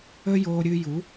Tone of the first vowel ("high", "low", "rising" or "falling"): high